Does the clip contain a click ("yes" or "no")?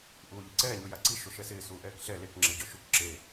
yes